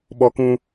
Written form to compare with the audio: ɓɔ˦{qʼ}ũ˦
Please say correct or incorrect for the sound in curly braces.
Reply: incorrect